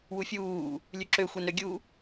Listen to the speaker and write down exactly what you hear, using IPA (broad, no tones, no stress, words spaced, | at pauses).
wufʲuː | lʲʉǁø xʷɛnɾøɡʲu